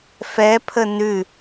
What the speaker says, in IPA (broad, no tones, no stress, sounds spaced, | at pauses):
f ɛ pʰ ə n ʉ